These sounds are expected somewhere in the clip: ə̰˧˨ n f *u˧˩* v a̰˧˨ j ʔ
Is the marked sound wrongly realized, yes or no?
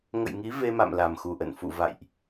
yes